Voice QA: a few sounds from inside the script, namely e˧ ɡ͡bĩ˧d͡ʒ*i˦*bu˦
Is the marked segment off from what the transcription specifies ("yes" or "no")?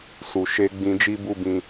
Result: no